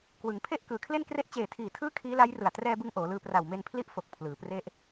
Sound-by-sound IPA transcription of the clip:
k w ɯ˩˦ ŋ pʰ e˥˩ ʔ k ɯː˩˦ kʰ l e˥˩ n k r e˥˩ ʔ t͡ɕ eː˨˩ tʰ iː˨˩ tʰ ɯː˦˥ kʰ iː˦˥ l a˦˥ j r ɯ˨˩ a̯ t r ɛː˧ b ɯ˧ ŋ ʔ oː˩˦ l ɯː˧ p r a˨˩ w m e˧ n pʰ l i˦˥ ʔ f o˨˩ k̚ pʰ l ɯː˩˦ p r e˥˩ ʔ

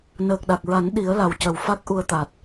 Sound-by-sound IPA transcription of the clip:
n əː˨˩ k̚ ɗ a˨˩ k̚ ɹ a˨˩˦ n ɗ i˨˩˦ ə̯ l a˨˩ w c ə˨˩ w f a˦˥ k̚ ʔ u˧ ə̯ t̪ a˨˩ t̚

